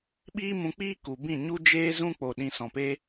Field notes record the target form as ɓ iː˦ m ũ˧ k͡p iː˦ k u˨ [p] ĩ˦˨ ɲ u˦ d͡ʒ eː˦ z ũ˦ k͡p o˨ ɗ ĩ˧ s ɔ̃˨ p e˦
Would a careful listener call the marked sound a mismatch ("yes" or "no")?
yes